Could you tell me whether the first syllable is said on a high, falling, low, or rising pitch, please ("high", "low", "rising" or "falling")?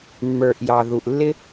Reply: low